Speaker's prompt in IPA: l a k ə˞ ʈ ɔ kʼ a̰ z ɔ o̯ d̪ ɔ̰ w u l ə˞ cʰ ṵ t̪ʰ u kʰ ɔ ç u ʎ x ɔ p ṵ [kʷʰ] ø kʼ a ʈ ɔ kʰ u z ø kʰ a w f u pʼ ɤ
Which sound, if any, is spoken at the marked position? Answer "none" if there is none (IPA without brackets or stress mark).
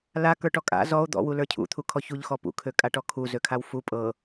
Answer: kʰ